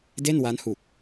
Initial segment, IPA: d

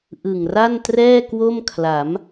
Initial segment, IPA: ʔ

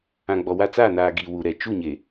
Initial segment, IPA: ã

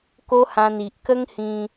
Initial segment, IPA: k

